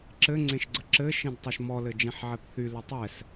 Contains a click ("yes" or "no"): yes